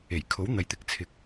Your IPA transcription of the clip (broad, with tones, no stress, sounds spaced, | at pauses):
e˨˩ j kʰ o˨˥ w n̪ ɐ˨ j t̪ ɪ˨ k̚ t͡sʰ ɪ˨˥ k̚